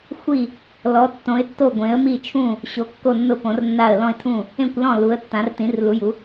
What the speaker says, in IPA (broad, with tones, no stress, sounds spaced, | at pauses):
xʷ i˧˩ | l ɔ˩˧ tː õ˩˧ ɪ̯ tː o˧˩ ɡʷ ẽ˩˧ ə̯ m i˧˩ t͡ʃʰ ũ˧˩ | ɕ o˩˧ kː o˧˩ nː ʊ˧˩ p õ˩˧ r nː a˧˩ ə̯ l ɔ̃˧˩ ɪ̯ tʰ ũ˧˩ | ẽ˧˩ kʷ l ɔ̃˧˩ l u˩˧ ə̯ tː ã˩˧ r t ĩ˩˧ r l u˩˧ j u˩˧